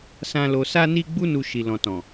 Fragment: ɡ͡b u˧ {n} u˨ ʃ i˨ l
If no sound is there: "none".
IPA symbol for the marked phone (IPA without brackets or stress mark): n